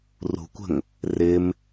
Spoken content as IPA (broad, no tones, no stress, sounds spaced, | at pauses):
r ṳ kʷ ə̤ ŋ | r ɪ m